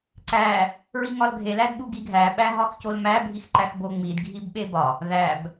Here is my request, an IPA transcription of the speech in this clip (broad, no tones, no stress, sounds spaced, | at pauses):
ǀ æ | ɹ i ŋ ɒ l ɡʱ e l æ d ɓ u ɡ i ɡʱ æ ɓ æ ɦ ɒ x c o l m æ bʱ i x ǃ æ x b o ŋ͡m i d ɡʱ i b ɓ e b ɒ | ð æ b